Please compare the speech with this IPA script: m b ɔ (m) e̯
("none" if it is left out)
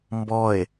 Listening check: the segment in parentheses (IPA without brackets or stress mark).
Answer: none